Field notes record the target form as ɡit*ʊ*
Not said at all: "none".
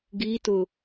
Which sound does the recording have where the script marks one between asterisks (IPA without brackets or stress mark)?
ʊ